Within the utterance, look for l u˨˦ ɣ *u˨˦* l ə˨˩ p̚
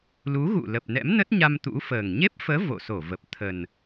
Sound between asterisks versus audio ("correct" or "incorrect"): incorrect